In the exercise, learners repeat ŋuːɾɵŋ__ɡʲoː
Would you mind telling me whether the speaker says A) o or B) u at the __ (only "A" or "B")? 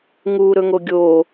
A